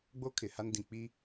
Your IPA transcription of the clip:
ɡ͡b o˦ kʰ ɪ˨ h a˦ n d ĩ˨ k͡p iː˦

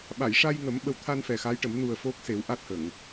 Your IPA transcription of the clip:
ɓ a˨˩˨ j ʂ a˧ j ŋ ə˨˩˦ m ɓ ə˨˩ w t̪ʰ a˧ n f ɛ˨˩ x a˧˥ j ʈ ə˨˩˦ m n u˨˩ ə̯ f o˦˥ k̚ s e˨˩˦ w ʔ a˦˥ t̚ h ə˨˩˨ ŋ

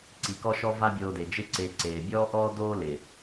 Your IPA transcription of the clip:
ǀ i˧ k ɔ˦ ʃ ɔ˦ v a˦ bʲ oː˧ d e˨ d͡ʒ ɪ˦ ǀ e˧ ǀ eː˨ bʲ ɔː˦ ʔ ɔː˦ d oː˦ l ɪ˨

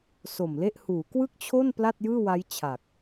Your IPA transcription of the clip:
s o˨˩ m l e˥˩ ʔ h uː˩˦ k w ɯ˥˩ k̚ t͡ɕʰ o˥˩ n p l a˥˩ t̚ j ɯː˥˩ w a˦˥ j t͡ɕʰ a˨˩ k̚

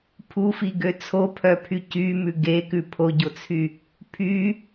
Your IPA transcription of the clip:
pʰ u f i ɡ ø t͡sʰ o pʰ œ pʰ y c y m ʉ ɡ e k ʉ pʰ o ɟ o t͡sʰ y | pʰ y

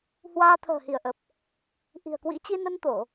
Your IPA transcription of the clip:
h w aː˧ t̪ʰ ə̤ː˨˩ h i˧˩ ə̯ ʔ ə˨˩ p̚ | ʔ i̤˨˩ ə̯ k w ḭ˧˥ t͡ɕ i˧ n ə˧ n t̪ o˧˩˨

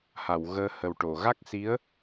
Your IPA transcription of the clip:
h a˨˩˨ w ɣ əː˧ h ə˨˩ w ʈ o˨˩˨ ɣ a˦˥ k̚ s i˧˥ ə̯

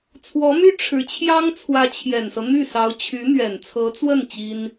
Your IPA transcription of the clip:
t͡sʰ w ɔ˧˥ m y˥ ʈ͡ʂʰ ɻ̩˧˥ t͡ɕʰ j ɑ˥ ŋ t͡sʰ w ä˧˥ t͡ɕʰ j ɛ˨˩ n s ɤ˦ n̪ y˥˩ s ɑ˧˥ ʊ̯ t͡ɕʰ y˧˥ n̪ ɥ ɛ˨˩ n t͡sʰ ɤ˧˥ t͡s w ə˥˩ n t͡ɕ i˥ n

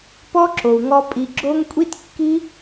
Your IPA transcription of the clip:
p ɔ˦ ǁ o˨ u̯ ŋ ɔ˧ pʼ i˨ ɡ͡ǁ o˧ ŋ kʷʼ i˦ t kː i˦

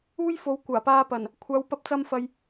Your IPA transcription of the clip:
uː˥ j f o˨˧ w kʷ aː˨˩ p aː˧ p ɐ˨˩ n | kʷʰ aː˨˧ w p ɐ˧ p̚ t͡s ɐ˧ m f ɐ˨ j

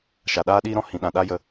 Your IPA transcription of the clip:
ʃ a˨ ɗ aː˦ ɗ iː˦ ɾ ɔ̃˧ h ĩ˨ ɗ ã˨ ɗ a˦ j ə˧

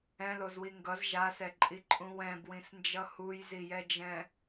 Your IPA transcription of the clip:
ɛ̃ l o z w i ŋ ɡ ʌ z ʒ a s ɛ ǃʼ i ǃʼ ũ w ɛ̃ b w ĩ s n d͡ʒ ʌ h u j z i j ɛ d͡ʒ ɛ̃

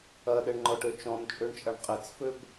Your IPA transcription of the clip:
ɐ ɗ ɛ ɳ ŋ͡ǃ ɔ ʈ ø t͡ʃ ɔ̃ n t͡ʃʼ ø ɳ t͡ʃʼ ɐ ɳ qʼ ɪ t͡s f ø b

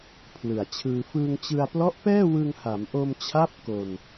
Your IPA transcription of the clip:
pʰ l ɯ˨˩ a̯ t͡ɕʰ ɯː˧ f ɯː˧ ŋ t͡ɕ ɯ˧ a̯ p l ɔ˦˥ ʔ p ɛː˥˩ w ɯ˧ ŋ h a˩˦ m ʔ o˧ m t͡ɕʰ a˦˥ p̚ k o˧ n

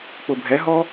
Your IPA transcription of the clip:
k͡p ʊ bʱ ɛ ɦ ɔ

